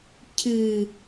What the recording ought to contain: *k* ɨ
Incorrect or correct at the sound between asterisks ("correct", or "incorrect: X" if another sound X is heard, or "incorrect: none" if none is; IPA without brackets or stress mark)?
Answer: incorrect: cʰ